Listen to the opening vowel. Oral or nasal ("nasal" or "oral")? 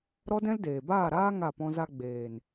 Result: oral